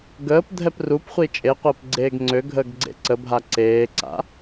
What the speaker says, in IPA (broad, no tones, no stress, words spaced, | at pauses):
ɡəːp dʱɛprupχʷi t͡ʃʼeqʷəːp ɡ͡ǀeːɡŋ͡ǀøɡʱəːɡ ɡ͡ǀḛǀəbʱa ǀeːǀa̰